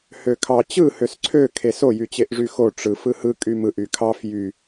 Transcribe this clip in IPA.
h ø kʰ ɑ t͡ɕ ɯ h ø s ǀʰ ø kʰ e s o j y t͡ɕ e ʔ ʐ y x o ʈ͡ʂ ɯ f ɯ h ɯ kʼ y m ɯ ʔ y kʰ ɑ f j y

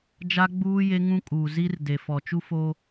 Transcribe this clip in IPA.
d͡ʒ a˦ ɡ͡b uː˦ j e˦ ŋ ũ˦ kʼ uː˨ z i˦ r d e˨ f ɔ˨ t͡ʃ u˦ f o˦

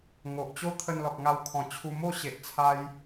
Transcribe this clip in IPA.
ŋ o˨ ʔ t͡ɕ o˦ t̪ʰ ə˧ n l ɔ˨ k̚ ŋ a˧ w kʰ ɔ̃˨˩ t͡ɕʰ u˧ m o˥˧ ɕ e˨ ʔ t͡sʰ a˧ j

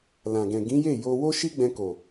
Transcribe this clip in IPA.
l ã˨ ɡ ɛ̃˨ ɡ ĩ˨˦ j e˦˨ j o˧ w o˦ ʃ i˦ ɡ͡b ɛ̃˧ k o˨

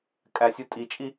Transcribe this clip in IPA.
kʼ æ sʲ u tʼ i t͡ʃʼ i

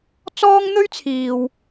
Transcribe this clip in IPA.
t͡s ɔː˥ ŋ n̪ ɵ˥ ɥ t͡sʰ iː˨ w

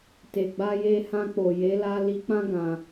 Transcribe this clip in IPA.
t e˨ ɡ͡b a˧ j e˧ h ã˧ k͡p o˨ j e˨˦ l a˧ l i˧ k͡p ã˦ ɡ ã˧

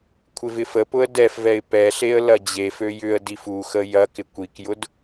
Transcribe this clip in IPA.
kʷʰ ɪ v ɪ f ə p ʊ ə̯ d ɛ f v ɛ ɪ̯ p ɛ ɬ e ə̯ l ɐ d͡ʑ e f ø j ʏ ə̯ d i f u x ə j ɐ k ɪ kʷ i k j ʊ d

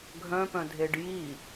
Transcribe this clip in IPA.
ɡʱ œ̃ p œ̃ dʱ e ɖ j i

